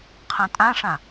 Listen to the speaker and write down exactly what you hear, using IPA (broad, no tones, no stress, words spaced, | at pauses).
qʰãtʼãʂã